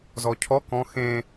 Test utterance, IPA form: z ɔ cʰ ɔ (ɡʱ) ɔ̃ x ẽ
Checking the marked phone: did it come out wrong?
yes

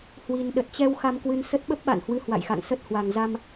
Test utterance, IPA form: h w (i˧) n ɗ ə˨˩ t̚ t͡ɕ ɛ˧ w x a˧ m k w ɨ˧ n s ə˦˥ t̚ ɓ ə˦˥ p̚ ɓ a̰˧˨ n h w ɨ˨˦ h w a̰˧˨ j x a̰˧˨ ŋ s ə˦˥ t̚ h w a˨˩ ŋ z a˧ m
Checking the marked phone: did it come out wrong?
no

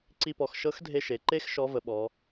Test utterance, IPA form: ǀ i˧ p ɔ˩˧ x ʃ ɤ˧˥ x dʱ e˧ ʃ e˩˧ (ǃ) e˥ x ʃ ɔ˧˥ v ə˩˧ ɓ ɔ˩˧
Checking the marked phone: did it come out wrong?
no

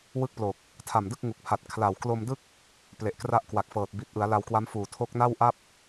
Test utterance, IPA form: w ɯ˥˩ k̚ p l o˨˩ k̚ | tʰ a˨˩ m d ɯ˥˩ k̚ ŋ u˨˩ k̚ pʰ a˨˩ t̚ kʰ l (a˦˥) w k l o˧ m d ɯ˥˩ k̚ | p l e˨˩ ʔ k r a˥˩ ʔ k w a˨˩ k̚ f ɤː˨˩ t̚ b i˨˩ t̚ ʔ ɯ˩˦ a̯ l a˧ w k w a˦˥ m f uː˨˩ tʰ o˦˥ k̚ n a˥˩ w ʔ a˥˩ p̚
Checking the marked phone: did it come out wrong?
yes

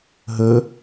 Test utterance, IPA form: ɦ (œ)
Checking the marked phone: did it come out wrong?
yes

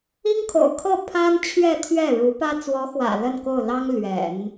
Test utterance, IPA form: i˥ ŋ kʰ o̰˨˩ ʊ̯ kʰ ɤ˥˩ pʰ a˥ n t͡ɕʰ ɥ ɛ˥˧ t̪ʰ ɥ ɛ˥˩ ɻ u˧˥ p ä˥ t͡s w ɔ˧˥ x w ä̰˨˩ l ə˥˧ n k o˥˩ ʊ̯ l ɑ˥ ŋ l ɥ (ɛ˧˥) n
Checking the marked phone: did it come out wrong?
yes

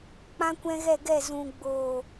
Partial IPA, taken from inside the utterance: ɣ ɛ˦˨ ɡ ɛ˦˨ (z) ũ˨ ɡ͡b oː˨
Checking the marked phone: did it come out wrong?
no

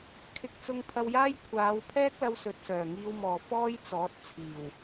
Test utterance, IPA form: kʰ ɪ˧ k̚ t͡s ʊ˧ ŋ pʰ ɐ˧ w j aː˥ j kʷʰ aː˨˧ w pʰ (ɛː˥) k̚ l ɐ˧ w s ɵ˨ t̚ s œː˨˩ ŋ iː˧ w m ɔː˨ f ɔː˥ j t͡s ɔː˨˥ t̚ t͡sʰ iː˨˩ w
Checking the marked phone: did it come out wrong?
no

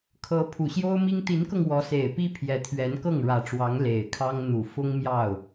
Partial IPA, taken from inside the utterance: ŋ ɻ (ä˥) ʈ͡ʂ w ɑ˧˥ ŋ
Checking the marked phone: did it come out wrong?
yes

